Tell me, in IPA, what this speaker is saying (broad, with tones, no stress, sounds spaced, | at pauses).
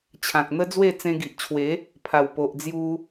t͡ɕʰ ã˨ k̚ n̪ ə˦ d͡z w e˥˧ t͡s ẽ˧ ɡ i˨ ʔ t͡ɕʰ w e˨˦ | pʰ a˨˩ w p o˨ ʔ d͡z j u˧